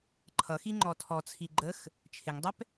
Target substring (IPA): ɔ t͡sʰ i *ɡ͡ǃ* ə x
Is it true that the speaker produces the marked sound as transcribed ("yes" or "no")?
yes